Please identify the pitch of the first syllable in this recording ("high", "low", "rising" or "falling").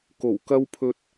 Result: low